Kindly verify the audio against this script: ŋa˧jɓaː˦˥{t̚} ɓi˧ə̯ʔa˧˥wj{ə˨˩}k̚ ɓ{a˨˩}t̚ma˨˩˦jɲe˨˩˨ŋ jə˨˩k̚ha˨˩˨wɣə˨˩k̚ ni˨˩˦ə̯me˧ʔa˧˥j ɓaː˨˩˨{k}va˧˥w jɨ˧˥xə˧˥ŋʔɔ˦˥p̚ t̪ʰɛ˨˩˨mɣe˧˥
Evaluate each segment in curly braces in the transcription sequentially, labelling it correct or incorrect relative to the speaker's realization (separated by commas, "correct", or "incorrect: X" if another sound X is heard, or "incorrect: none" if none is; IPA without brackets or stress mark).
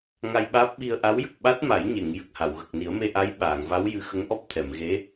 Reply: incorrect: p̚, correct, incorrect: a˦˥, incorrect: ŋ